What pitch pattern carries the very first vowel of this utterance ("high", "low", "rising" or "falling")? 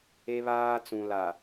high